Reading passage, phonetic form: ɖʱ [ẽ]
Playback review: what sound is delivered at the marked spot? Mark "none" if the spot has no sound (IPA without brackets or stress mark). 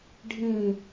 ĩ